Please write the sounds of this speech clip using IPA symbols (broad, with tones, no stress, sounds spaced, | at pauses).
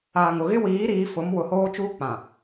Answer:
aː˨ ŋ ʊ˨ ɣ ɪ˦ w iː˨˦ ɾ iː˨˦ f ʊ˨˦ m w ʊ˨ h oː˦ t͡ʃ uː˦ k͡p ã˨